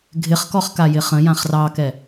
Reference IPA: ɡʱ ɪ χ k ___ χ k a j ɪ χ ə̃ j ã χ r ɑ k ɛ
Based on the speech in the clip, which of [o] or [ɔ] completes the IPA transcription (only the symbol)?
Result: ɔ